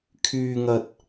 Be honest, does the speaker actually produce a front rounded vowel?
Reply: yes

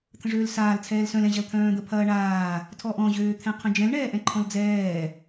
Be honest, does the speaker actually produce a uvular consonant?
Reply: yes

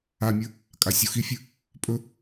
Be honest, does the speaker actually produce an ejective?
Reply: yes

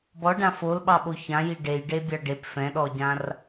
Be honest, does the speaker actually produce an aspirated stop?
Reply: no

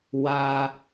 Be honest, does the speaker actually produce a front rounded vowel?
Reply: no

